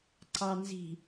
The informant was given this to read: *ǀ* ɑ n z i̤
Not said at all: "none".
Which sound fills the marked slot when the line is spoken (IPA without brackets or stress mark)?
ǀ